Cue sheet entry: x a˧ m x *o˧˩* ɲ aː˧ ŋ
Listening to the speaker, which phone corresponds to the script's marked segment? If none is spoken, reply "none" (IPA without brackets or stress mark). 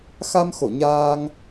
o˧˩